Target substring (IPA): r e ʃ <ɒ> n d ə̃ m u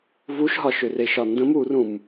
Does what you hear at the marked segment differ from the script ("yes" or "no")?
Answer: no